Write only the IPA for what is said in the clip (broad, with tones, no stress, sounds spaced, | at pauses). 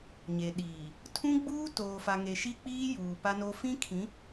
ɲ e˨ ɗ iː˨ | tʰ ũ˦ ɡ͡b uː˦ t oː˨ f a˨ ŋ e˨ ʃ i˦ k͡p iː˦ j uː˨ p a˦ n o˦ f ĩ˦ kʰ ĩ˨˦